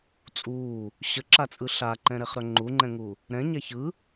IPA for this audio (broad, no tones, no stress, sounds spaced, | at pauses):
t͡sʼ uː | ɕ ə ǁ a t͡sʼ ɯ ɬ a ǃ ɛ̃ ɾ ɛ χ ɾ œ ŋ͡ǃ u ŋ͡ǃ ɛ̃ ŋ u | ɾ ɛ̃ ɲ æ ç ɯ